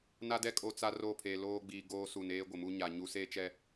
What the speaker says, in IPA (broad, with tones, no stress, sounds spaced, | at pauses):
n a˦ d ɛ˦ kʼ o˦ t͡s a˦ r oː˦˨ pʰ eː˨ l oː˦ ɡ͡b iː˨ ɡ oː˦ s u˨ n eː˦ ɡʷ ɪ˨ m u˦ ɲ a˨ ɲ u˨˦ s eː˦ t͡ʃ ɛ˦